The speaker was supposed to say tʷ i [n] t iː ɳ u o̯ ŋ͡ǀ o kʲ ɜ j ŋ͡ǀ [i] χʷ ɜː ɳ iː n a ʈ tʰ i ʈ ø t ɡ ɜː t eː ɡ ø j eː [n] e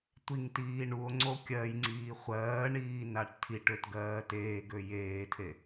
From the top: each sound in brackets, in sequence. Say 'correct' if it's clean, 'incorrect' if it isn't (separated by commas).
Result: incorrect, incorrect, incorrect